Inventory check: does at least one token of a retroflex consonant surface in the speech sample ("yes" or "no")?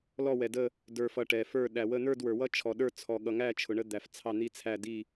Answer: yes